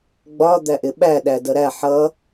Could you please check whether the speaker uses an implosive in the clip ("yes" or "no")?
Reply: yes